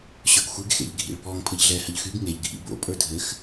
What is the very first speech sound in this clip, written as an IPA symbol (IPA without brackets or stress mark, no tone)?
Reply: ɕ